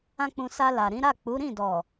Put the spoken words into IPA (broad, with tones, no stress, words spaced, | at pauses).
ã˦k͡pũ˧ sa˧la˨ɾĩ˨˦ ɾa˦˨k͡pu˨˦ ɾĩ˦˨dɔ˨